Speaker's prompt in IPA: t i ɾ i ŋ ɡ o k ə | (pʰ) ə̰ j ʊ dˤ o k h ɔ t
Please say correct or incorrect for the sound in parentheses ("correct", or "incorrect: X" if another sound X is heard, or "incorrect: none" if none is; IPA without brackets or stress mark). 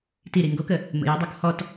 incorrect: m